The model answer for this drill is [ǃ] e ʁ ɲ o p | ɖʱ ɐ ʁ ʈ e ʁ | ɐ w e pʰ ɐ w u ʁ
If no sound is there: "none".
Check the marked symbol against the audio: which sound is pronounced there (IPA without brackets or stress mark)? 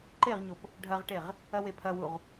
ǃ